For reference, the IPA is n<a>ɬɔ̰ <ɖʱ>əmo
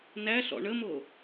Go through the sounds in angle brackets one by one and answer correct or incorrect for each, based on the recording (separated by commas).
incorrect, incorrect